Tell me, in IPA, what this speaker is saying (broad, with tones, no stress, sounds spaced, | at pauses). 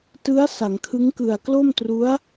t ɯ˦˥ a̯ s a˩˦ ŋ kʰ ɯ˦˥ ŋ k ɯ˨˩ a̯ k l o˥˩ m t r u˦˥ a̯